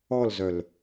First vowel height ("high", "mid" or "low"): mid